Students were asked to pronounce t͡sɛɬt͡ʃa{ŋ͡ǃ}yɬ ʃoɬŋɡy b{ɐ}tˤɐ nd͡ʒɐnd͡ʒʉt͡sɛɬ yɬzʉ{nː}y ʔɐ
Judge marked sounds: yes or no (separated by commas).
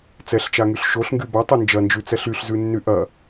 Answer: no, no, yes